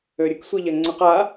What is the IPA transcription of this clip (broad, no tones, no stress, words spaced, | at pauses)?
øɾʲək sʷiʎɛŋ͡ǀəq a